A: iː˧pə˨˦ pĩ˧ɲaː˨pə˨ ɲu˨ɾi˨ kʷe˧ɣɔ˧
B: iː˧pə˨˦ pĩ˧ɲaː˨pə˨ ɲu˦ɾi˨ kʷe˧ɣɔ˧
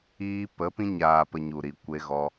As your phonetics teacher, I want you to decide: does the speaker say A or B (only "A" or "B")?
A